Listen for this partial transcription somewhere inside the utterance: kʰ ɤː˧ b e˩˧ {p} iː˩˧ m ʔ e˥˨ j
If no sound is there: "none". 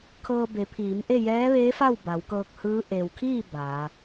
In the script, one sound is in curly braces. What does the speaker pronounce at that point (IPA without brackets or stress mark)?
pʰ